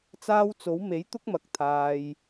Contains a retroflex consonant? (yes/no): no